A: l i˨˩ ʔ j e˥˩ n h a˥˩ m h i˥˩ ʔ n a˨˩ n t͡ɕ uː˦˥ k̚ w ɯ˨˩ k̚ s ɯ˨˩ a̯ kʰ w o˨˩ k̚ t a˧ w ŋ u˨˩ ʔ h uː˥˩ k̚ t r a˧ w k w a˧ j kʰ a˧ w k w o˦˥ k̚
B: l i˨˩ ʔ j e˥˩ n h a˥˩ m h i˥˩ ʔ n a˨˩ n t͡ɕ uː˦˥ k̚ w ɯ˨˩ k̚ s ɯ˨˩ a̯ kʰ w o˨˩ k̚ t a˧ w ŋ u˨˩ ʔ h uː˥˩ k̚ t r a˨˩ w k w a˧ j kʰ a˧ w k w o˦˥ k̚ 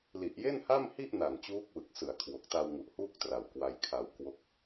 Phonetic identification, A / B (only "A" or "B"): B